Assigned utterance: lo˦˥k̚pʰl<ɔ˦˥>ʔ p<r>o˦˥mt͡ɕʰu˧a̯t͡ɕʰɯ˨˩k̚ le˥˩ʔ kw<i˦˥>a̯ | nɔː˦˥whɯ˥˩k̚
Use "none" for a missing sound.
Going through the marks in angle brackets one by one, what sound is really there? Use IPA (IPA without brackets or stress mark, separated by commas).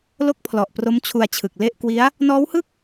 ɔ˨˩, r, i˦˥